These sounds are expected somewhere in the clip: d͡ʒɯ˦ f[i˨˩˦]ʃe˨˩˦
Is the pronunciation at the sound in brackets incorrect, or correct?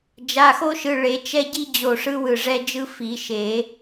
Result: correct